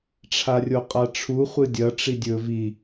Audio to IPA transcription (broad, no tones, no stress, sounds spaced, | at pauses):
ʈ͡ʂʰ a rʲ o qʼ a ʈ͡ʂʰ u χʷ ɨ dʲ ɐ ʈ͡ʂ i dʲ ɵ v i